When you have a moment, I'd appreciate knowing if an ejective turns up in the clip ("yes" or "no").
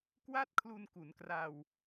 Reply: no